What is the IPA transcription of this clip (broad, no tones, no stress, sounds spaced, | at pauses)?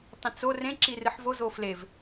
tˤ ĩ t͡s o r ẽ ǁ i r ɨ ħ v o z o f l e v